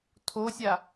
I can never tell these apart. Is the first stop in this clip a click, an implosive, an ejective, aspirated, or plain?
aspirated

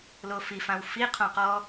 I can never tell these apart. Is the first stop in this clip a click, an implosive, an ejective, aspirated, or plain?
aspirated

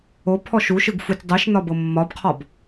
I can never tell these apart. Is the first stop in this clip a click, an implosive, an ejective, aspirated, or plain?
aspirated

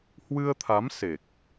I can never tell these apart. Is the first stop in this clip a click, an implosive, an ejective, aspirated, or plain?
aspirated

